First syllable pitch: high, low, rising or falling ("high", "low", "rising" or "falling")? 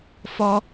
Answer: high